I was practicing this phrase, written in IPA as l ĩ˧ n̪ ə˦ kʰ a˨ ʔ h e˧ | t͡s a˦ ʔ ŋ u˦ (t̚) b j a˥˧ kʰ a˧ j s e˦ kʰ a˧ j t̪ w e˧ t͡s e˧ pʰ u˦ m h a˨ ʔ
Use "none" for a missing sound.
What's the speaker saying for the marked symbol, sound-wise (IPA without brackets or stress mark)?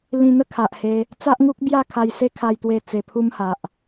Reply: k̚